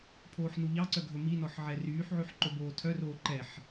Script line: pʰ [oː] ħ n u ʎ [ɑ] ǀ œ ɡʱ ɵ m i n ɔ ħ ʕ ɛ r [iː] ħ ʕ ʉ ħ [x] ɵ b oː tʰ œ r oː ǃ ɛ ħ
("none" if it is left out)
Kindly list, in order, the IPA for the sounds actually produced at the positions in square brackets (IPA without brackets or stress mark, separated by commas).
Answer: oː, ɑ, yː, ǃ